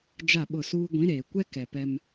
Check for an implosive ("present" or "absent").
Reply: present